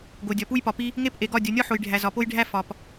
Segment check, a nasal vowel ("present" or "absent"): absent